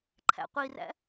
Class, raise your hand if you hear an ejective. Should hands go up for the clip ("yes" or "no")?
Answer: no